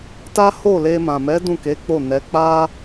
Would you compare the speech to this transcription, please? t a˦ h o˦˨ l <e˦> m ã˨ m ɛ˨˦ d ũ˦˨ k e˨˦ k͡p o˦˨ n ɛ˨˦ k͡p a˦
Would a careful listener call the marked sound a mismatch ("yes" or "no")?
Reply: yes